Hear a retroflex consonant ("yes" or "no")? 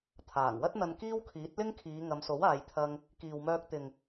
no